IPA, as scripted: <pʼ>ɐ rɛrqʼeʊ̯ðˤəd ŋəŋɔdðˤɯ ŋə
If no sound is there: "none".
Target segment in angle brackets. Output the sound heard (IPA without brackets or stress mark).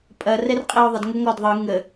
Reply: pʼ